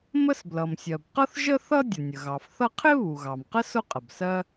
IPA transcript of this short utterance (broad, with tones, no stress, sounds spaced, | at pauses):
m ə˥ s b l ʌ˩ m sʲ ɜ˩ b q ʌ˥ θ ʒ ə˥ θ ʌ˥ dʲ ə˩ nʲ ə˩ ɣ ɑ˩ f θ ʌ˥ qʰ ɪ˥ β u˩ ɣ ɑ˩ m q ə˥ s ʊ˥ qʼ ə˩ b s ɜ˥